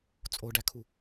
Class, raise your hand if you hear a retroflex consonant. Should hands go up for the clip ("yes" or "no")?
yes